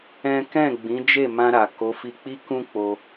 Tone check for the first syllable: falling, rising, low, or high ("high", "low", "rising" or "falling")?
high